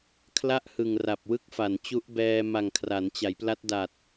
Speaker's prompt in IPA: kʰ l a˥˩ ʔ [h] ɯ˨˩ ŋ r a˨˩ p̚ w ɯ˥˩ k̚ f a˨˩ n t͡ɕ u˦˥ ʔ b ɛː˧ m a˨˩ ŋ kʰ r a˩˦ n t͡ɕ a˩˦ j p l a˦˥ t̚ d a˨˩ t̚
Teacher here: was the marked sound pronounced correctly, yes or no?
yes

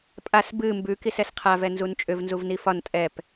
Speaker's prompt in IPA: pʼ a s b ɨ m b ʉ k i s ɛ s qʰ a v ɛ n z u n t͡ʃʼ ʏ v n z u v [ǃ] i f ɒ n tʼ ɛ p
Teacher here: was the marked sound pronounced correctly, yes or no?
no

